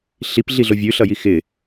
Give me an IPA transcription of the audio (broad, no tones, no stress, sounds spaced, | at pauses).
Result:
ɬ i p ɮ i ɮ o vʲ ʉ ɬ ʌ j i x ɪ